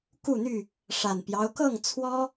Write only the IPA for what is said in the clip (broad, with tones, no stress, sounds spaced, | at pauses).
k u˥˨ n̪ y˥˨ | ʂ a˨˩ n p j ɑ˦ ʊ̯ k ɤ˥˨ ŋ t͡sʰ w ɔ˦